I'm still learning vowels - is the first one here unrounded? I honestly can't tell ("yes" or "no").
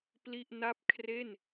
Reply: yes